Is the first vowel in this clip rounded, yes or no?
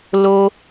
yes